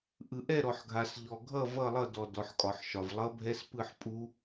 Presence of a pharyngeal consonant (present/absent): present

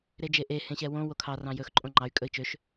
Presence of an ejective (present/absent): present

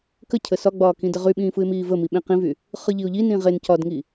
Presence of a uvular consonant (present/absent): present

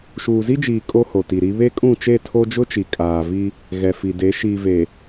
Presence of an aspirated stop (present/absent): present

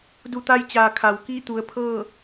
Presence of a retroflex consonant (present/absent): absent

